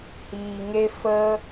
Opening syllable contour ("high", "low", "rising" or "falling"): low